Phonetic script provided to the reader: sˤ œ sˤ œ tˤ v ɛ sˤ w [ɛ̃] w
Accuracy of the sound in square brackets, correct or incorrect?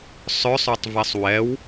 incorrect